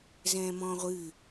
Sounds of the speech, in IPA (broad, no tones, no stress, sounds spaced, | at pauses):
z ɛ̃ː m ɔ̃ː ʁʷ ɨː